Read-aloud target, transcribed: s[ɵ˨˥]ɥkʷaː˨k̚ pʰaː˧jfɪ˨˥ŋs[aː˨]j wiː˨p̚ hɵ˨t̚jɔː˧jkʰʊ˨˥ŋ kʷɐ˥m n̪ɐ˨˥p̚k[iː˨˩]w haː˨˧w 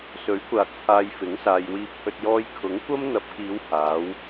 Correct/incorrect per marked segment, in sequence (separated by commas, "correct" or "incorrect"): correct, correct, incorrect